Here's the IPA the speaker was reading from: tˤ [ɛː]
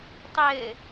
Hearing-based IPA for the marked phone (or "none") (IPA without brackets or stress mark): ɘː